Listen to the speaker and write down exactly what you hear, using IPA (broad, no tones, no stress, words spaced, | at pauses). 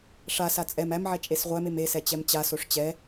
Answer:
ʂasa t͡sʼɛm æmʕɛ t͡ʃʼesʁʷæmem esɛ t͡ɕɛmt͡ɕasoʂ t͡ɕɛ